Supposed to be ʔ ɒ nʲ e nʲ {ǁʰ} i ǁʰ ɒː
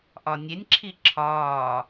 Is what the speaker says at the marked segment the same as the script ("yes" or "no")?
yes